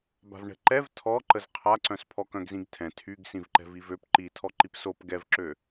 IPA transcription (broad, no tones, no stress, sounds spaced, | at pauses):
b a̤ v ɳ ɛ̤ ǃ ɛ v tʰ ɔ ǃ ə z qʰ a ǀ œ̃ s pʰ ɔ k œ̃ ɡ z ĩ ɡ tʰ ɛ̃ tʰ y ɡ s ĩ v ǃ ɛ̤ v i v ø p ǃ i tʰ ɔ ǃ i p s o p ɡ ɛ v ǁ ø